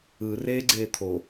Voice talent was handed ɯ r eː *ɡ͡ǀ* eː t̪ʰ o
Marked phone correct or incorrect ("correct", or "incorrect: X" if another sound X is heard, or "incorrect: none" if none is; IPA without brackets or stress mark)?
correct